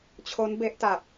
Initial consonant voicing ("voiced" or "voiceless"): voiceless